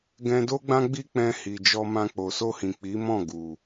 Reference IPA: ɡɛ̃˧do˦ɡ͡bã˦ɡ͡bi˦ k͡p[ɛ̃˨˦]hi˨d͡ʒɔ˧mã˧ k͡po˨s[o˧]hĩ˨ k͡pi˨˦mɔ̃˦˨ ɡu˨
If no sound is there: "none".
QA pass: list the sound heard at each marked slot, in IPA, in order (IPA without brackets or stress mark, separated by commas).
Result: ɛ̃˧, o˧